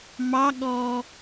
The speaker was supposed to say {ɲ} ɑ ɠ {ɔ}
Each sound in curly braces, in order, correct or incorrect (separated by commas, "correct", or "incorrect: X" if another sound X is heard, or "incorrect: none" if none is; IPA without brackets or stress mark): incorrect: m, correct